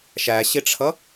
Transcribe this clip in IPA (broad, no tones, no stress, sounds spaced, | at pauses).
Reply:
ʃ æ ɕ ɪ ʈ͡ʂʰ ʌ